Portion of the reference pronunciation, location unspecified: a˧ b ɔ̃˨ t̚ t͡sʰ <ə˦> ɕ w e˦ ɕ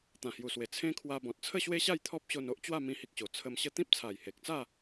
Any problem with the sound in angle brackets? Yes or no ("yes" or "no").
yes